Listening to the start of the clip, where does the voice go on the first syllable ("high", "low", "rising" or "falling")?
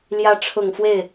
rising